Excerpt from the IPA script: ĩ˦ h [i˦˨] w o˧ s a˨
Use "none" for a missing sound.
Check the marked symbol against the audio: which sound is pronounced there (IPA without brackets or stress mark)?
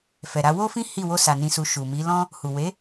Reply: i˦˨